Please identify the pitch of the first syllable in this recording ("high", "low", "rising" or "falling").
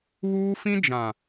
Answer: high